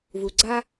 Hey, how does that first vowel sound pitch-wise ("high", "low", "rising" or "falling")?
low